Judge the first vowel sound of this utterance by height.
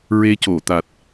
mid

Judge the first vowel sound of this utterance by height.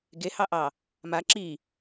mid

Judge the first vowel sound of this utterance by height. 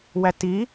low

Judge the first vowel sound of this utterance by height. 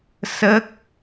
mid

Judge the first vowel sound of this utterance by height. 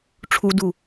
high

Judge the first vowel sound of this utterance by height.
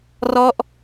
mid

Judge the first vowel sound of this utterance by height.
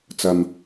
low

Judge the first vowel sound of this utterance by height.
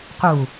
high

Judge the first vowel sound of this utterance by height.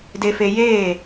mid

